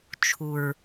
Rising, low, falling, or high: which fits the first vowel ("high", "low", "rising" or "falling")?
low